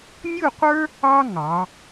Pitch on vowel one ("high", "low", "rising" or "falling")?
falling